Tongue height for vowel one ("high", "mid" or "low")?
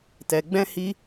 mid